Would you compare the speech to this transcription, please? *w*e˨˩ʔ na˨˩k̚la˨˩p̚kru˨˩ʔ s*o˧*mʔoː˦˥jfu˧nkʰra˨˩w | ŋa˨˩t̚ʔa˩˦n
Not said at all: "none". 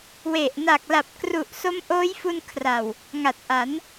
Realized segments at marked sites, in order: w, o˦˥

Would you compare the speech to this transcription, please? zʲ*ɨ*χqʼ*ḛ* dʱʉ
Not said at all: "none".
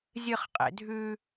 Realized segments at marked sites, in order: ɨ, ḛ

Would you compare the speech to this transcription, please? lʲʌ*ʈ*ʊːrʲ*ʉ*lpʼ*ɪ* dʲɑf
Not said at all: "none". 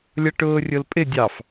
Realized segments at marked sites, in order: ʈ, ʊ, ɪ

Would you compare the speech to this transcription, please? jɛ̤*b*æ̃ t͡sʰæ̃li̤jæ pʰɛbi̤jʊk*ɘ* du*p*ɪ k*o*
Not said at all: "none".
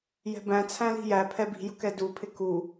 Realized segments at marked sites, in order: b, ɛ, pʰ, u

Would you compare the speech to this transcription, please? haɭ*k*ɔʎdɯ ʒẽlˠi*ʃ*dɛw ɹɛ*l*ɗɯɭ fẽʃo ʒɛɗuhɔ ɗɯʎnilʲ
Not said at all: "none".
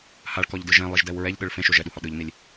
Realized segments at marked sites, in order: k, ʒ, ʎ

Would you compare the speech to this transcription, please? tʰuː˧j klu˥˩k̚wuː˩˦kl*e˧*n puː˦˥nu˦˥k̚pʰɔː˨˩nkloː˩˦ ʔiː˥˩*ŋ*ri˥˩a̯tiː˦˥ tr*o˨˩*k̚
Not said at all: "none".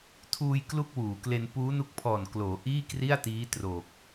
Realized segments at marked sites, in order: e˧, k, o˨˩

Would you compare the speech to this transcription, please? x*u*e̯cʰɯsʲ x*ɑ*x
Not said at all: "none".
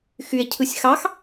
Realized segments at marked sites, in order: y, ɑ

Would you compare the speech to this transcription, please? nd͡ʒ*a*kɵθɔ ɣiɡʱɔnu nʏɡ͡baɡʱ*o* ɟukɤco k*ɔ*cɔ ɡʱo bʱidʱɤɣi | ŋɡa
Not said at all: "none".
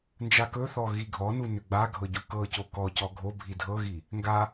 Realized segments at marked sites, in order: a, ɤ, ɔ

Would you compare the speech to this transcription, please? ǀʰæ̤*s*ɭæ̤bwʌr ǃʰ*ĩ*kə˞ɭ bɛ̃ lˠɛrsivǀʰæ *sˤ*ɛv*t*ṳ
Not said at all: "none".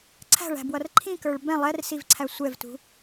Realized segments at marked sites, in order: none, ĩ, sʷ, t

